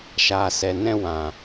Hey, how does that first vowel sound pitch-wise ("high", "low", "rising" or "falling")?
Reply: low